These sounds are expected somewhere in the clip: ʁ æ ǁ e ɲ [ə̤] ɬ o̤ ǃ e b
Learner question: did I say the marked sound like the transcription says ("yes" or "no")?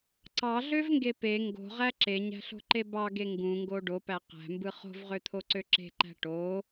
no